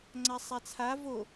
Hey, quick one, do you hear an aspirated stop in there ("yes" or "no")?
yes